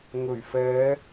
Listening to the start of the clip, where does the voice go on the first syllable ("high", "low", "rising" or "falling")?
low